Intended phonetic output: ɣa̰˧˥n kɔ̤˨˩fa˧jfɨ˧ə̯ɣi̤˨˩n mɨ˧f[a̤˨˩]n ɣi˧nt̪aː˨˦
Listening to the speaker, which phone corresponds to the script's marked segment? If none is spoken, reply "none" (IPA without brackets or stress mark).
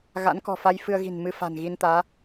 a̤˨˩